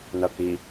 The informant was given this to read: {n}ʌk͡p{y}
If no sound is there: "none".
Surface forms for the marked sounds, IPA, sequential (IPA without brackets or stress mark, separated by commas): n, i